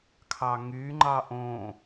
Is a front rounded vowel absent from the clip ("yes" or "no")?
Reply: no